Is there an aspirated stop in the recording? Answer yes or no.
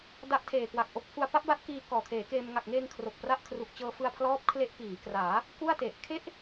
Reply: yes